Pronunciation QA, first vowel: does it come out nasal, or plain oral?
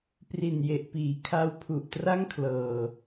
oral